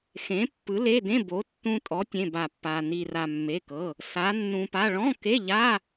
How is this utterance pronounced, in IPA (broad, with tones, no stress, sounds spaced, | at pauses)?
x ẽ˨˥ pː ɯ˨˥ l e˧˥˧ d ẽ˧˥˧ b o˨˥ tː ũ˧ tʼ ɔ˨˥ tʲ ẽ˧˥˧ b a˧ pː a˧ n i˧ r a˧ mː e˧˥˧ k ɤ˧˥˧ | s a˨˥ nː ũ˧ p a˧˥˧ ɭ ɔ̃˧˥˧ k e˧˥˧ ʎ a˧˥˧